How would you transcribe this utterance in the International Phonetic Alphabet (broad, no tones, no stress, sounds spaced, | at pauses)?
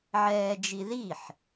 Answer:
ʕ ɛː d͡ʒ i ð i ħ